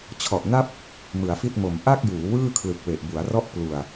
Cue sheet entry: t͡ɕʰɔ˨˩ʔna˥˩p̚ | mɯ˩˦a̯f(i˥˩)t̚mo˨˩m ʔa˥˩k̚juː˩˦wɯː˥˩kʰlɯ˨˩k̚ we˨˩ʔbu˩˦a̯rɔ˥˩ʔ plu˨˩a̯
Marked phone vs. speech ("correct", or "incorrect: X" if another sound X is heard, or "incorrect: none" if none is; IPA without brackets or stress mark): correct